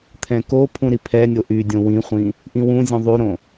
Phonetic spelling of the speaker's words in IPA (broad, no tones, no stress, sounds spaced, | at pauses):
t̪ʰ ɛ̃ k o pʰ ũ ɾ i pʰ ɛ nʲ o ʔ y dʲ õ w ĩ χʷ ĩ | ʔ ĩ w ũ zʲ ũ ðˤ y ɾ õ